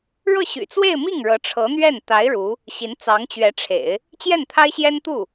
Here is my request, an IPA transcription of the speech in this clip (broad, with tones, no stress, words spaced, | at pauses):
ɻɤ˥˩ɕy̰˨˩t͡swe˥˧ɪ̯mi˥˩ŋ ɻɤ˧˥ʈ͡ʂʰɤ˧˥n̪ɥɛ˥˩n t̪a˧˥ɪ̯ ɻu˧˥ | ɕi˧˥nt͡sɑ˧˥ŋt͡ɕɥɛ˧˥ʈ͡ʂʰḛ˨˩˦ɪ̯ | t͡ɕjɛ˥˩nt̪ʰa˥ɪ̯ɕjɛ˥n t̪u˥˩